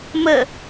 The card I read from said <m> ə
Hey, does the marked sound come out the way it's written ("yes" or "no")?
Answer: yes